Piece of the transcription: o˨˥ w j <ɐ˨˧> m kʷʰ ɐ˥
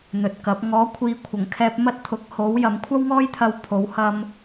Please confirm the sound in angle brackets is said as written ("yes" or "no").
yes